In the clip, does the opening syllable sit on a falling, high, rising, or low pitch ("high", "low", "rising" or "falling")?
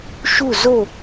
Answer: falling